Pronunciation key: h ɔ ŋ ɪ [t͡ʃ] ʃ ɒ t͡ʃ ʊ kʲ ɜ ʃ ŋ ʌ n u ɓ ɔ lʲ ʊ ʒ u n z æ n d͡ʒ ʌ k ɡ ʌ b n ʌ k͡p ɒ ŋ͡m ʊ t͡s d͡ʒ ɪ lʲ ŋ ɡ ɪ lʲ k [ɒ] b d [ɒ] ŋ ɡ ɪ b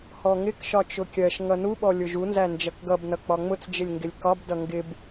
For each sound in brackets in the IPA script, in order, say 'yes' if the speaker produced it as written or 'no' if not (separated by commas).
no, yes, no